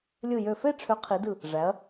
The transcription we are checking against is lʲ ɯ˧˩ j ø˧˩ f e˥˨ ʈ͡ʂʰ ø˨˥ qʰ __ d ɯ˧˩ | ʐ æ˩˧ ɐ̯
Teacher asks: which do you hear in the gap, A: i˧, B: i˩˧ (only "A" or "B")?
B